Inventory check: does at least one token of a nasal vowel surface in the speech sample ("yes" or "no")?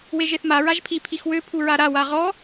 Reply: no